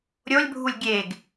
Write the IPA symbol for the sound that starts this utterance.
ɾʲ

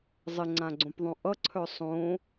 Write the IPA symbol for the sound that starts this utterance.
zˤ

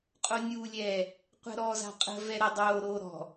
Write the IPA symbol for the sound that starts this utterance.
qʼ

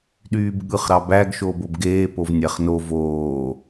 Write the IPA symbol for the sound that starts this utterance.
ɗ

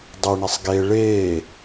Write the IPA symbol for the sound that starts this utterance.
dˤ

